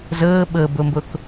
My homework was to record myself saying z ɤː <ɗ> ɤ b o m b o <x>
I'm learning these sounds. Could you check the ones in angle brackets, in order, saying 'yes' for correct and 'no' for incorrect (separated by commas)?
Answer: no, no